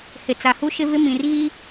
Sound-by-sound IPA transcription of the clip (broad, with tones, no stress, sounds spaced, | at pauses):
h ɪ˨ t͡s a˨ h u˦ ʃ ɪ˦ v ɪ˦ m ĩ˨ r ɣ i˦